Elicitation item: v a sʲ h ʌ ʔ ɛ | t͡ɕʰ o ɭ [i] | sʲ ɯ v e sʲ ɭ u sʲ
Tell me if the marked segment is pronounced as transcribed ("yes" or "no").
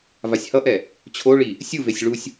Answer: yes